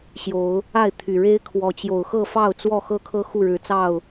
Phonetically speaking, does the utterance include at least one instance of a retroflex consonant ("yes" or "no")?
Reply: yes